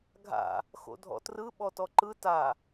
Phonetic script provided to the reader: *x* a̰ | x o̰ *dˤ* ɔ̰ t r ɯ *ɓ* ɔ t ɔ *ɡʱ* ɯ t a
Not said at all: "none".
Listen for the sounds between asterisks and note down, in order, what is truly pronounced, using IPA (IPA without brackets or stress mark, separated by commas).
ɡʱ, dʱ, ɓ, ǃ